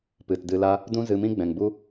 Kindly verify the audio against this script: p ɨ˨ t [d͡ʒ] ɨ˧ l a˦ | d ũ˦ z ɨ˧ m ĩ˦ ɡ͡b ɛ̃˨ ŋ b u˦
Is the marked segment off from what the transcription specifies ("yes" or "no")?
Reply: yes